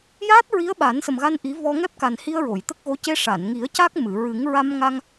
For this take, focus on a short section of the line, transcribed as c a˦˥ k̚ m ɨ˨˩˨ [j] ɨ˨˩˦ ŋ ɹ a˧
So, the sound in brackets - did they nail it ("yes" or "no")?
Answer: no